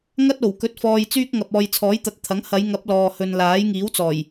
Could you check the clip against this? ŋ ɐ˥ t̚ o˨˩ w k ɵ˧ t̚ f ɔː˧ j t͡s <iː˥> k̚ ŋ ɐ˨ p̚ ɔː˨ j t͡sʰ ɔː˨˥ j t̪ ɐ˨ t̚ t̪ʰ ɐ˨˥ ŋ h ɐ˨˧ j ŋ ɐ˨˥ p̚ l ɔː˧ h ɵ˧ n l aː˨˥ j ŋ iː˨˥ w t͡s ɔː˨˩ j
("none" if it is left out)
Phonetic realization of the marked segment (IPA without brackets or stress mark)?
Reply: yː˥